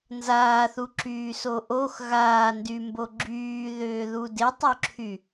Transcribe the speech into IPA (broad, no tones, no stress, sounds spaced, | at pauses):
n z aː θ u ǁ yː s o ʔ o x ɣ aː n d y m b o ɡ͡ǁ yː ð ʏː ð u d ɪ tˤ o ǁʰ y